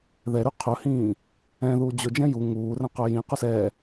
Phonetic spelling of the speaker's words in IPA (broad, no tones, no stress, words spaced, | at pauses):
ðɛɾy qʰɵhĩː | ɛ̃ ðuːd͡ʑɵd͡ʒɛ̃ ju ŋuːrɛ̃qɵ jĩ qusɛː